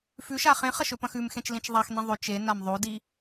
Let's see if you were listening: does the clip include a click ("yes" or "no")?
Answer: no